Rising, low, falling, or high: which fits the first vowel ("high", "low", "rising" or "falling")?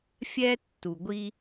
high